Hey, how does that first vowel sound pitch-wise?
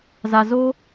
low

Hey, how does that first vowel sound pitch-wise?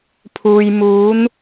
low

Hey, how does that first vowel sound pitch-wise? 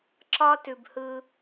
high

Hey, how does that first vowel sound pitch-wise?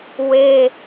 high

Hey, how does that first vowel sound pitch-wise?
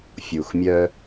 low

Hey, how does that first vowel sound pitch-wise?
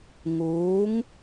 rising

